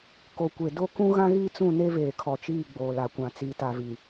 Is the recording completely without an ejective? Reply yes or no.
yes